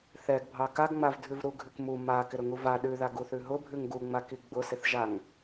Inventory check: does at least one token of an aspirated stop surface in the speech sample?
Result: no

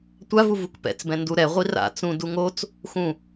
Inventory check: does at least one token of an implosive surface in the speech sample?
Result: no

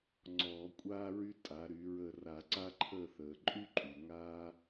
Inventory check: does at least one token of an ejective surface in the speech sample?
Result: yes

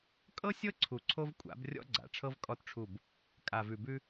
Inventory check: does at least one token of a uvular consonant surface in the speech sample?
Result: no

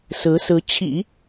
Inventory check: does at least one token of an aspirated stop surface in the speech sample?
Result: yes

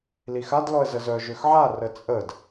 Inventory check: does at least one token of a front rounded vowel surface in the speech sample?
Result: yes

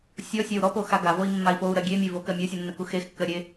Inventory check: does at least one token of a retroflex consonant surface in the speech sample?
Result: no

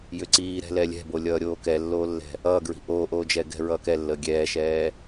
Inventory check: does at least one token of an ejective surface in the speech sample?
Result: no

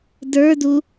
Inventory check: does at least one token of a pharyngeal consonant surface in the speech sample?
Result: no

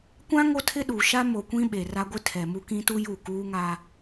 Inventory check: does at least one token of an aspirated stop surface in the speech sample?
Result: yes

